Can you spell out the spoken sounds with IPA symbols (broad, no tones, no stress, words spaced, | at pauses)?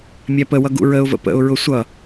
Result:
mʲæpəwʌ ɡṵɹəʊ̯və̰ pə̰ʊ̯ɹʊ sʷʌ